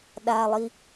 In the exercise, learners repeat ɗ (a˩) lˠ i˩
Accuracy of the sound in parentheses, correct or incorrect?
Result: correct